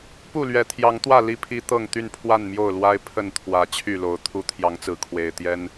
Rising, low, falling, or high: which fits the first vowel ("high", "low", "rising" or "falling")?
falling